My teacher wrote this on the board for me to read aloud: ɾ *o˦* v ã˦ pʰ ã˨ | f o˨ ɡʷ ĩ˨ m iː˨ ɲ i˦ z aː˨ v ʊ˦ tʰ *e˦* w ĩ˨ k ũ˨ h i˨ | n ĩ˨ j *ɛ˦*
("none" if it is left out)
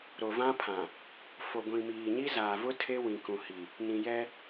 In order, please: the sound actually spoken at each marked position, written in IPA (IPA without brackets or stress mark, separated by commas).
o˨, e˦, ɛ˦